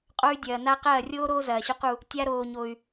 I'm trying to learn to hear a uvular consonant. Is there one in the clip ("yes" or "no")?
yes